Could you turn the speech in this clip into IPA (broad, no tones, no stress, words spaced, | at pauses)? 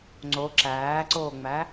ŋ͡ǀo ǁæːǀoːŋ͡mæ